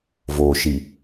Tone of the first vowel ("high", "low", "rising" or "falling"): low